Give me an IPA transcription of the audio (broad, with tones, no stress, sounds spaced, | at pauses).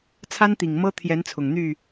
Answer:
t͡sʰ a˦ n t̪ i˨˩ ŋ m ɤ˦ t̪ʰ j ɛ˨˦ n t͡sʰ ʊ˨˩ ŋ n̪ y˥˨